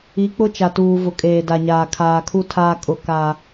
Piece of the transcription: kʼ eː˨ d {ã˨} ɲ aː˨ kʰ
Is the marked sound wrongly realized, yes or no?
yes